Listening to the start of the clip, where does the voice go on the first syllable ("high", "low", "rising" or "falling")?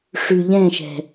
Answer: low